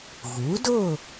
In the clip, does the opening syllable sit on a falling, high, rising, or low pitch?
rising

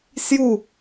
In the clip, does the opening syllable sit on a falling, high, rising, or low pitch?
falling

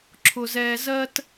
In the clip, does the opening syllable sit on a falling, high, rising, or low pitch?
high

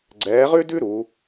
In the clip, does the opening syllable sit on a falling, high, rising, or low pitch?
rising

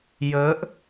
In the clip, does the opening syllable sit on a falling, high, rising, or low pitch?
rising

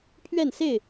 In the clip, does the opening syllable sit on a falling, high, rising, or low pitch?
falling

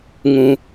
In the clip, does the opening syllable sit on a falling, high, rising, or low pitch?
low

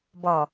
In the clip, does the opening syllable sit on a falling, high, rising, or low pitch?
low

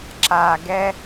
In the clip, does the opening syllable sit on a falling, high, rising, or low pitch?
low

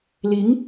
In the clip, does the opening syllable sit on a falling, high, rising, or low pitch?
rising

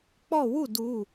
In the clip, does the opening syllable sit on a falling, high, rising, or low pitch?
falling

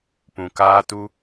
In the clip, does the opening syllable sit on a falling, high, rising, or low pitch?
low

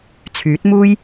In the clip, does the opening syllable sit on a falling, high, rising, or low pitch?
rising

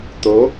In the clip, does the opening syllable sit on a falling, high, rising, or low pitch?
rising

